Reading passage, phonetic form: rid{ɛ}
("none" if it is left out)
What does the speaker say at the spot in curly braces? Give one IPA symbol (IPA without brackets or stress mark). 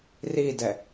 ɛ